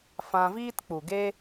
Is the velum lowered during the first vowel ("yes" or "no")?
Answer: yes